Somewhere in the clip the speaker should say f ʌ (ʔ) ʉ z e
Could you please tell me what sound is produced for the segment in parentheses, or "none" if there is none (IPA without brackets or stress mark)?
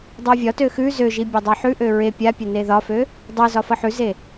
ħ